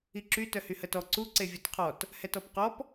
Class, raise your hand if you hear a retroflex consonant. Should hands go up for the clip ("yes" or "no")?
no